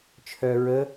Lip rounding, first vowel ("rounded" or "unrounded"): rounded